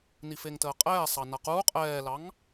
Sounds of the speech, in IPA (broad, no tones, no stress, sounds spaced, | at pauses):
n i f e ŋ t əː qʼ ɛː sˤ ɑ n a q uː qʼ ɛː l ɑ ŋ